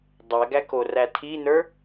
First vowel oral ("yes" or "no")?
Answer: yes